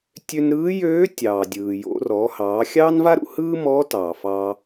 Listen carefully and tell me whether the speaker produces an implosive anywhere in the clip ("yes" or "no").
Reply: no